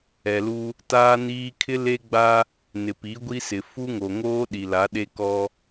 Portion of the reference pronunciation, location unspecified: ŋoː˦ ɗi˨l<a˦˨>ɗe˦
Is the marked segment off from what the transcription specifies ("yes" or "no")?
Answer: yes